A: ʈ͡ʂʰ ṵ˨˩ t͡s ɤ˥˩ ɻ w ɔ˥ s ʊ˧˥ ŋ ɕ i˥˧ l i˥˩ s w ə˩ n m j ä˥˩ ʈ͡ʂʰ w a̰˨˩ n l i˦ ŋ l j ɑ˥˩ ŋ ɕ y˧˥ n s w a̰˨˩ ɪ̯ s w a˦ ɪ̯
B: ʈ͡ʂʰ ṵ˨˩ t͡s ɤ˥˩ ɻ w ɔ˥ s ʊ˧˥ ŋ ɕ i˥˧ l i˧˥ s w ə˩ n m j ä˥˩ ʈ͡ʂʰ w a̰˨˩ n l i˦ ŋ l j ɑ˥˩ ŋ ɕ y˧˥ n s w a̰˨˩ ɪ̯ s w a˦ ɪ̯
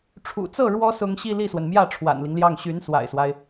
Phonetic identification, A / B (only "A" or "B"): A